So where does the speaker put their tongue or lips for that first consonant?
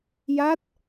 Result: palate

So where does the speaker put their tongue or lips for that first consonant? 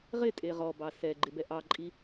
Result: uvula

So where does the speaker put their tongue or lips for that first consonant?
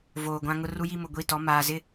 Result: lips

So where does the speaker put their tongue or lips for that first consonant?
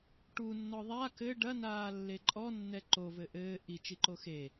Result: retroflex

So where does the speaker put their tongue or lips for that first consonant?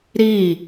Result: tongue tip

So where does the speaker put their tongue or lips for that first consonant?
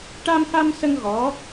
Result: retroflex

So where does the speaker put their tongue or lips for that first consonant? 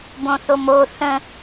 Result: lips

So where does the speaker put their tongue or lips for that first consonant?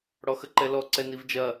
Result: retroflex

